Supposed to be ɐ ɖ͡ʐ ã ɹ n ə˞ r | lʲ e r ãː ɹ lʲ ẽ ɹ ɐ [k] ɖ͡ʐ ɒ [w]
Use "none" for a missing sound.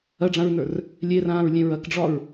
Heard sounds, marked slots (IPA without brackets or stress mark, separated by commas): k, ɹ